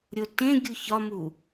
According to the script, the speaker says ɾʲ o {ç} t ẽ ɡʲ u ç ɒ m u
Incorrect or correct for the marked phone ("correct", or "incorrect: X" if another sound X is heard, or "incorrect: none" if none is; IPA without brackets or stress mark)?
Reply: incorrect: none